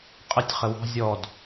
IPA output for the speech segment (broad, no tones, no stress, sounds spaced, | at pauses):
qʼ ə tʲ χ ə w ɑ̤ zʲ ɔ d